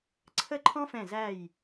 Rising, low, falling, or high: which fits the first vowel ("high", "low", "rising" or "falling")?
falling